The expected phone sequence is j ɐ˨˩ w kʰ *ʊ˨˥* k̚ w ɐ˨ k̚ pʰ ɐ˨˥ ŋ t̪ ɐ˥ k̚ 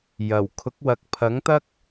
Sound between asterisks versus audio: correct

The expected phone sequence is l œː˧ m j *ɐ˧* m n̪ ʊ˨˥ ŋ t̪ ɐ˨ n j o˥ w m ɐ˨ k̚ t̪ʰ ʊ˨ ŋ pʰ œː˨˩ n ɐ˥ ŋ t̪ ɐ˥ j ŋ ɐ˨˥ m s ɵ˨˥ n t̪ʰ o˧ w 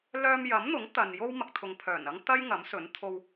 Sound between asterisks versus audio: incorrect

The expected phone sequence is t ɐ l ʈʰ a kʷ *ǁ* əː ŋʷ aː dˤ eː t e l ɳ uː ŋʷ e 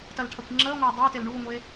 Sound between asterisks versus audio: incorrect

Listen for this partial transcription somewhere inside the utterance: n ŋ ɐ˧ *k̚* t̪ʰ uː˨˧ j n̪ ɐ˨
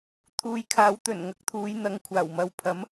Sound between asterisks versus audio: correct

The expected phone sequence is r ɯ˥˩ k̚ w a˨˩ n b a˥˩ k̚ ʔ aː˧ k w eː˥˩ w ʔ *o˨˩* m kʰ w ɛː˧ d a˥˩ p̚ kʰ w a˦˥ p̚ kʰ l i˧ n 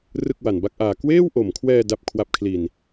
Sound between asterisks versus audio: correct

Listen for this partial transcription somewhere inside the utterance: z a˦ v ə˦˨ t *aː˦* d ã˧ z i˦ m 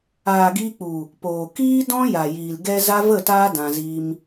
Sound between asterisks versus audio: correct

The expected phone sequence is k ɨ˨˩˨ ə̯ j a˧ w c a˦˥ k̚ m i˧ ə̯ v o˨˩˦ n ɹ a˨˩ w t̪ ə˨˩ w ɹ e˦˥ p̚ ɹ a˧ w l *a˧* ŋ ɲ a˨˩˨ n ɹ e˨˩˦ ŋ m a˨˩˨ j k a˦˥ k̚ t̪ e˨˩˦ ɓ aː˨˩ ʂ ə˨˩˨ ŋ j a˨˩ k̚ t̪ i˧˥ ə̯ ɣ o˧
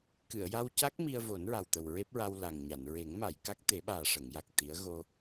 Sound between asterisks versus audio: incorrect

